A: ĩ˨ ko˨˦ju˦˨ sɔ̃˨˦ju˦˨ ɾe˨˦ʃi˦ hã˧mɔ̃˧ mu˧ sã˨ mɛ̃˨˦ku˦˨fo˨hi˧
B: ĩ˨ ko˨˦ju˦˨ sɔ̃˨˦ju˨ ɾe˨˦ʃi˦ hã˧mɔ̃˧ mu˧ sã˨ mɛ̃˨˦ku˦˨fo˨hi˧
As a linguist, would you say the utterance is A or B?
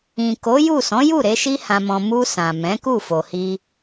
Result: A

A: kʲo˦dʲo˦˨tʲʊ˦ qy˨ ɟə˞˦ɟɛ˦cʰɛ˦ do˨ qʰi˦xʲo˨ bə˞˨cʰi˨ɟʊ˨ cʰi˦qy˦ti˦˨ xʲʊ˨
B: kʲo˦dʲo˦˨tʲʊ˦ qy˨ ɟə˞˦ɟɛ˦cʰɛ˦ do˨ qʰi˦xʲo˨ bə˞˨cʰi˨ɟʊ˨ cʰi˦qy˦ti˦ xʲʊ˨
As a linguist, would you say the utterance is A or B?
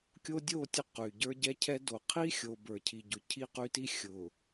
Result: B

